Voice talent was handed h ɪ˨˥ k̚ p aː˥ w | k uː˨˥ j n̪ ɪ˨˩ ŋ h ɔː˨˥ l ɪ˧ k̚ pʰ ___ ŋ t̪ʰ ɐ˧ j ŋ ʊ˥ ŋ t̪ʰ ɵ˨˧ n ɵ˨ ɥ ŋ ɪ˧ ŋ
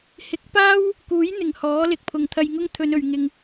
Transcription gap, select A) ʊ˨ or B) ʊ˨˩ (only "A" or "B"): A